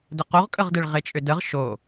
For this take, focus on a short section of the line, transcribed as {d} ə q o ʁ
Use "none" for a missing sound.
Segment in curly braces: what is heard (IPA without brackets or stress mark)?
d